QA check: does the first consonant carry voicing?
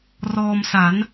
yes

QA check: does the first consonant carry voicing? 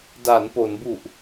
yes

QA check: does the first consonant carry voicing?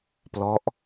no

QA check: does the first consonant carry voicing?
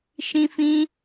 no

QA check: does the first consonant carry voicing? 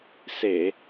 no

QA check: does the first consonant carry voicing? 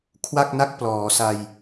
no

